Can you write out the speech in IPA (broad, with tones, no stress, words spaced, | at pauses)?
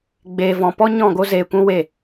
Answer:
ɡ͡beː˨vɔ̃˨ pɔ˦ɲɔ̃˦˨ ɡo˦zeː˧kʷũ˦ we˦˨